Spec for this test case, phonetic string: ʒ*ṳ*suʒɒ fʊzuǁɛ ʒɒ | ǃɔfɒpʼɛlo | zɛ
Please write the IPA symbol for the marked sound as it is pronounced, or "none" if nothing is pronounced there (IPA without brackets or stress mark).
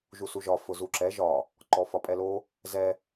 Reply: u